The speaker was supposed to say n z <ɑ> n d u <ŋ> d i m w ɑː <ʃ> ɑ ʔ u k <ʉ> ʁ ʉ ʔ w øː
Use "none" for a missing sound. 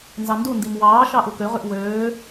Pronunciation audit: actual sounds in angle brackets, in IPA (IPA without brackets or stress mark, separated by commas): ɑ, n, ʃ, ø